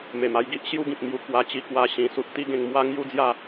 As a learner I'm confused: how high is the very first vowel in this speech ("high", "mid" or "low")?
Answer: mid